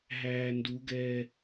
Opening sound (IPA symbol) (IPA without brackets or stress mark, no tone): ɦ